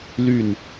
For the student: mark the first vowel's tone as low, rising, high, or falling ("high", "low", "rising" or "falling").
falling